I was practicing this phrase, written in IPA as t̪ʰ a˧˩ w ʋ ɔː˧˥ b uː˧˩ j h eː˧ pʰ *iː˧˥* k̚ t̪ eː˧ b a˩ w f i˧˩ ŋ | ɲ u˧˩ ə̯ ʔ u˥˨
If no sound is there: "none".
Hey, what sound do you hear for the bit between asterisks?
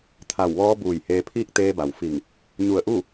iː˥˨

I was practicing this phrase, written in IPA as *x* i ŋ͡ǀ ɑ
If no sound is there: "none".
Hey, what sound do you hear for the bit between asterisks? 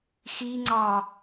x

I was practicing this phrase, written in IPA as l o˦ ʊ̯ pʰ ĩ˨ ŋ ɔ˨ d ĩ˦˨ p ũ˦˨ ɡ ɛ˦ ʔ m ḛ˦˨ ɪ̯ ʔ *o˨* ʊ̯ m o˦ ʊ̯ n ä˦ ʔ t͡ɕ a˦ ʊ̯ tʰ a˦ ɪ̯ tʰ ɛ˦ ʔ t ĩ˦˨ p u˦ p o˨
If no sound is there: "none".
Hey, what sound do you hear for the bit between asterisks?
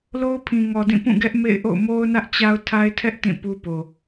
o̰˦˨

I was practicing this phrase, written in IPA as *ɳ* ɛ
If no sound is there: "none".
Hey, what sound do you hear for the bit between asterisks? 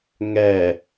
ŋ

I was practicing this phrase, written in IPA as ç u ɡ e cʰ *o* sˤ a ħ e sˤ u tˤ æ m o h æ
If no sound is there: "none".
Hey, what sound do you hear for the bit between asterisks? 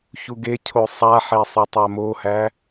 o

